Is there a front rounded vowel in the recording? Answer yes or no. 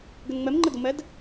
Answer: no